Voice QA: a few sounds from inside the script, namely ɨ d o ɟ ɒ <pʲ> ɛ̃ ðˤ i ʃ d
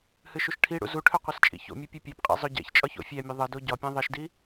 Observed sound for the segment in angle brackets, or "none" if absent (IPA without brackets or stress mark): pʲ